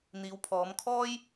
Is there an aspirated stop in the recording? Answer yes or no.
yes